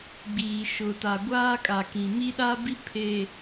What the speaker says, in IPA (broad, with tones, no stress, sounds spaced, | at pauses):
ɡ͡b iː˨ ʃ ʊ˨ t a˨ ɡʷ aː˦ kʼ a˨ k ĩ˨ m i˦ ɗ a˦ b i˦ pʰ e˨